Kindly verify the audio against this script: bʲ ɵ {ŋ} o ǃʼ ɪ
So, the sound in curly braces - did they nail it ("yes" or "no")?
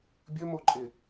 no